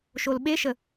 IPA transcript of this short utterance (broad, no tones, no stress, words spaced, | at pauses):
ʃolɓeʃə